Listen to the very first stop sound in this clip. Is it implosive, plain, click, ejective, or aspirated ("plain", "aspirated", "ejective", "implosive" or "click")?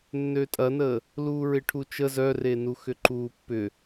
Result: ejective